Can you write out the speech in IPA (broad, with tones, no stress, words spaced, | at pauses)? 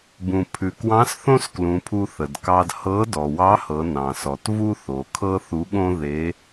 bũ˩ pʰʉ˩kwɑ̃˧˥s θõ˥sklũ˩˧pʰu˧ θə˩dkɑ˧d hɤ˧˥ dɔ˩wɑ˧˥hɤ˩˧ nɑ̃˩sɔ˩tvu˥ θo˩˧kʰɤ˥θu˧˥ɠõ˥ ðe˧˥